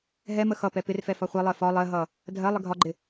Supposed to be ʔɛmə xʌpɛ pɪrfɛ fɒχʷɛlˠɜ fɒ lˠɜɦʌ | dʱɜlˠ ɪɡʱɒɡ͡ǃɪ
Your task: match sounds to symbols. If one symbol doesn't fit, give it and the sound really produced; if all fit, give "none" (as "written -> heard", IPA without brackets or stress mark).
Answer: ʔ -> ɦ